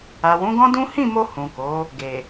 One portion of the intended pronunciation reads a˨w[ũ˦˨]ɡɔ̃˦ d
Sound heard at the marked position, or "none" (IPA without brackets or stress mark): ũ˨˦